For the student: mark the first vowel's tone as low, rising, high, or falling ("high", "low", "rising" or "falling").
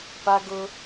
high